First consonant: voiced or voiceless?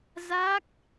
voiced